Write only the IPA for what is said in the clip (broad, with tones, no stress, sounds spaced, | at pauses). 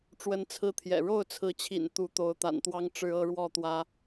ʈ͡ʂ w ə˦ n t͡sʰ ɹ̩˦ t̪ʰ j ɛ̰˨˩ ɻ o˥˨ ʊ̯ t͡sʰ ɹ̩˨˦ t͡ɕʰ ḭ˨˩ n t̪ u˨˦ t̪ o˨˦ ʊ̯ t̪ a̰˨˩ n t̪ w ɑ˦ ŋ ʈ͡ʂ ɻ̩˦ ɤ˦ ɻ w ɔ˥˨ t̪ w ä˦